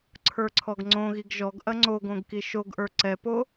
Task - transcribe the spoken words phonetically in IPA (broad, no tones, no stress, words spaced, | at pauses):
ǀʰə˞ǀʰɔɡŋ͡ǀõɣiɡ ʒɔɡ ʔɐŋ͡ǀoɡõɡ kiʃoɡʔə˞ ǀɛpo